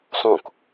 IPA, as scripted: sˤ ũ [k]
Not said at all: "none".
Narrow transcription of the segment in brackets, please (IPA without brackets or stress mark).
k